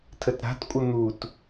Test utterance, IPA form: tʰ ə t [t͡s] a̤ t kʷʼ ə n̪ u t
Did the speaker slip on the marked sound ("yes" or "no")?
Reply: yes